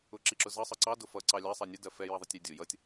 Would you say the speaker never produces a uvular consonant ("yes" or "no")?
yes